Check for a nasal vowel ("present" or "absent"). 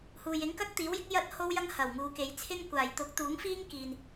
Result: absent